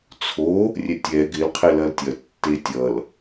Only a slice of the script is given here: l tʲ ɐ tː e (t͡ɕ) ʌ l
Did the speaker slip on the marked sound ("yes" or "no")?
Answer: yes